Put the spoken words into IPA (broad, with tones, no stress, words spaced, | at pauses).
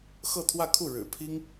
xɤ˥˧t̪ʰwä˥˧kʰu˥˩ ɻɻ̩˨˩pʰi˥ŋ